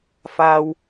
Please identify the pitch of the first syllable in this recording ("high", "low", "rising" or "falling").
low